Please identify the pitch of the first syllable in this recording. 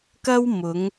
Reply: high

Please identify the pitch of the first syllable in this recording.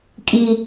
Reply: low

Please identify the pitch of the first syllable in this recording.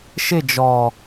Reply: falling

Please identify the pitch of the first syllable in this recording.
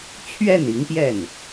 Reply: falling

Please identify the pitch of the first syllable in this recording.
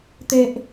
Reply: high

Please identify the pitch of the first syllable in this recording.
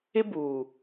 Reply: high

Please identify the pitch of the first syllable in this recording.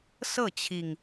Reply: falling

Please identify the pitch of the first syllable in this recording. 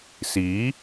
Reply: rising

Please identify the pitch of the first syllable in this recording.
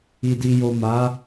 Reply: low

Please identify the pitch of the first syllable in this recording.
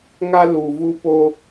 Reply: high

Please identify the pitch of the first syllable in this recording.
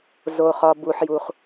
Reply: low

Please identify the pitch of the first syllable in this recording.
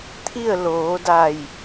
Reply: falling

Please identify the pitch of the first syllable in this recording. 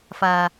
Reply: low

